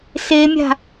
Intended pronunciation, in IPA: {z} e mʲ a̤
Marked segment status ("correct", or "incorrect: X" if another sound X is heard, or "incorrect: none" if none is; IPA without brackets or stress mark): incorrect: s